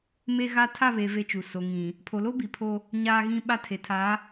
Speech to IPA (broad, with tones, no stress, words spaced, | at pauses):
me˦ɣa˦ tʰa˦˨βe˨ ve˦t͡ʃu˨ so˨ŋĩ˨ | pʰo˨lo˦ bi˨pʰo˦ | ɲaː˦ɣĩ˦ɓa˦ tʰe˨tʰa˨˦